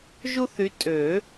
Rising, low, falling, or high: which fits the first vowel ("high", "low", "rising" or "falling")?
high